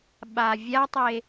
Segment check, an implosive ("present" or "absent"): present